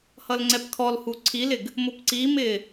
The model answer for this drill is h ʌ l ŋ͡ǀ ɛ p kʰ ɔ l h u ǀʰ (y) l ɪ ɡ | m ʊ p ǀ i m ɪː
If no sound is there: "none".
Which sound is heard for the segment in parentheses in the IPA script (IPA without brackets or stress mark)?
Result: i